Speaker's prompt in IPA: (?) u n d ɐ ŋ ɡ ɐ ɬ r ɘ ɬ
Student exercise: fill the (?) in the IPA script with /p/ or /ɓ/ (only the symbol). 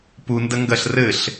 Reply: p